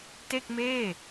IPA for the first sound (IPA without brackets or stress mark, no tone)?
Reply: t